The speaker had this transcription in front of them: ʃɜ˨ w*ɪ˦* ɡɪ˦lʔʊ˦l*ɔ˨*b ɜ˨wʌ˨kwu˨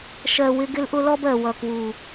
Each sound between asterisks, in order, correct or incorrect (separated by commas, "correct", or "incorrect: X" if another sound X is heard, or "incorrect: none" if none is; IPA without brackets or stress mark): correct, incorrect: ɔ˦